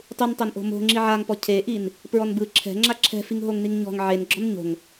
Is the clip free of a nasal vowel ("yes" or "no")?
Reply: yes